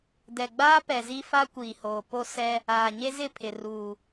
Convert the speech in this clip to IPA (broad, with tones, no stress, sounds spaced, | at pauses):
d ɛ˨ ɡ͡b aː˦ p ɛ˨ z i˦ f a˦ kʷ iː˨ h oː˨ p o˦ s ɛ˦ | aː˨ ɲ e˦ z ɪ˦˨ pʰ ɪ˨ r uː˨